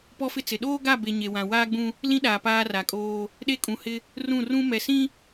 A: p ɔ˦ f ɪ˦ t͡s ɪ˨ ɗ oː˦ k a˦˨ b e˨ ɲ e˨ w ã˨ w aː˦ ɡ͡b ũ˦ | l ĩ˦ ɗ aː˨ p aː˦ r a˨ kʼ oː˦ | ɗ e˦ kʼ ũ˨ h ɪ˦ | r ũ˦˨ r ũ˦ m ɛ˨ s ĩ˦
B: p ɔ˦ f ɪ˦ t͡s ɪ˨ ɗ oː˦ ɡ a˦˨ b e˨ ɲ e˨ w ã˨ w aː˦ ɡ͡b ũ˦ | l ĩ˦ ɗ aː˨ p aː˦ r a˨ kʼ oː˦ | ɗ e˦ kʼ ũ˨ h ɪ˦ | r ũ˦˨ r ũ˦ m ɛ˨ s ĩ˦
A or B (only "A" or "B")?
B